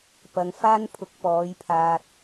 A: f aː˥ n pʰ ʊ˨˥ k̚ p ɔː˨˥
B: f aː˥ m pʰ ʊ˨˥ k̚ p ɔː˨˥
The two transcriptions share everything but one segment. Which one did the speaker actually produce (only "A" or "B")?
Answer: A